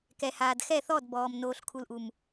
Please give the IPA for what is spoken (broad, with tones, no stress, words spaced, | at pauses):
kɛ˨haː˨dxɛ˦˨ θɔ˦˨dbɔː˨m noː˨ɬkʰu˨lʔu˨m